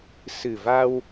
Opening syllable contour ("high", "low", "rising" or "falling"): low